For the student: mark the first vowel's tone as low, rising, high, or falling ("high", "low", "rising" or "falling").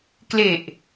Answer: low